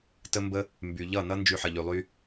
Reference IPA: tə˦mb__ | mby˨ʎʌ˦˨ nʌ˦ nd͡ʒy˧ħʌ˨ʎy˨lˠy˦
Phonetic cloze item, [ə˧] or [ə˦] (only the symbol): ə˦